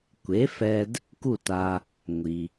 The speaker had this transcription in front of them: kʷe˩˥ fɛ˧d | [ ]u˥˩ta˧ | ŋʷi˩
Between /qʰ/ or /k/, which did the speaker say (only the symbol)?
k